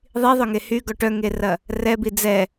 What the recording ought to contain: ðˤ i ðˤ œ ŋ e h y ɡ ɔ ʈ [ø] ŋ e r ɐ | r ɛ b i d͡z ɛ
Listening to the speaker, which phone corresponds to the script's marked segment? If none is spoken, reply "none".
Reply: œ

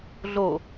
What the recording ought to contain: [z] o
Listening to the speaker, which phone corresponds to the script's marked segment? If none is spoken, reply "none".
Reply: ɮ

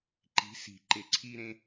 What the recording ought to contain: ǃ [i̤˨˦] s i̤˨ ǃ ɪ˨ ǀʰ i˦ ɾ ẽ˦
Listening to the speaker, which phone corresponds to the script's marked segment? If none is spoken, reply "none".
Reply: i̤˨˦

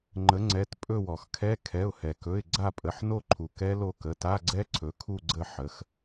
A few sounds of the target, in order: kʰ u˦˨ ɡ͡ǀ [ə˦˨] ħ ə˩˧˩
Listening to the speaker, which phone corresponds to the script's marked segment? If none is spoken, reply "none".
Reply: ə˦˨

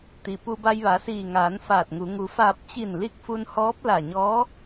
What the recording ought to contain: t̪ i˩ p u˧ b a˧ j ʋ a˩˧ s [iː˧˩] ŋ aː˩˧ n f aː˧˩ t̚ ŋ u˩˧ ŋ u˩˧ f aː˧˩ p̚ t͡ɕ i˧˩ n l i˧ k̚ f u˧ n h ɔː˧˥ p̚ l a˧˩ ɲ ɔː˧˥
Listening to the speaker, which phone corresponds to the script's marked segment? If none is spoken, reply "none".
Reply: iː˧˩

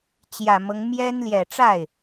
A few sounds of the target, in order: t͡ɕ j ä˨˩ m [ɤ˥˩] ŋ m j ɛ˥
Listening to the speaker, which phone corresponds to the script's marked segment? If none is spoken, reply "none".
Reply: ɤ˦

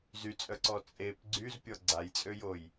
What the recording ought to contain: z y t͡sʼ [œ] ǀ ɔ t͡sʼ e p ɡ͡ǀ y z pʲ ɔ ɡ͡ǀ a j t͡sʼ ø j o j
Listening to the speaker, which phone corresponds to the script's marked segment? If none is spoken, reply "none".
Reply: œ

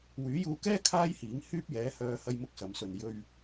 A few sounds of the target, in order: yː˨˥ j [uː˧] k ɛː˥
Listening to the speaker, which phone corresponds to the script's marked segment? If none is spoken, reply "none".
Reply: uː˧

